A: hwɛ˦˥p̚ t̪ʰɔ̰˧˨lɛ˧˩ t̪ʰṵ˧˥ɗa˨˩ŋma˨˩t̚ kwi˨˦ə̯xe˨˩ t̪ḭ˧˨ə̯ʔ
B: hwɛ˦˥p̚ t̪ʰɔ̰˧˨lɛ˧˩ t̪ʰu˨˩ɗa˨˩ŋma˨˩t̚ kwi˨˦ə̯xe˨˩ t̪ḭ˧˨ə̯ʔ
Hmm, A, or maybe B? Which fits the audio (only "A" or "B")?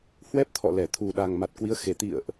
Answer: B